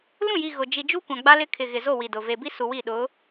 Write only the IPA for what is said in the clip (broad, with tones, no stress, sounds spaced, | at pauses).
l ũ˦˨ j i˨ ɣ ʊ˨ d͡ʒ i˨ d͡ʒ u˦ kʷ ã˨ ɡ͡b a˦ l ɪ˦ kʰ ɪ˨ ɣ ɪ˨ z o˦˨ w i˨ d ʊ˨ v e˨ b i˦ s u˨ w i˦˨ ɗ ʊ˨˦